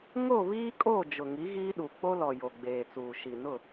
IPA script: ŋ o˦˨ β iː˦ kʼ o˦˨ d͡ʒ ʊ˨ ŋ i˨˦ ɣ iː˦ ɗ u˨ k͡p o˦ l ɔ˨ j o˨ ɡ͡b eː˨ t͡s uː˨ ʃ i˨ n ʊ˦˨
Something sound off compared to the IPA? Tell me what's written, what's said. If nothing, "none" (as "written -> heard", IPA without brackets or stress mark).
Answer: none